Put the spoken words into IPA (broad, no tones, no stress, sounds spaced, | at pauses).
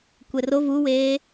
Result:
kʷ ɛ r o v u w eː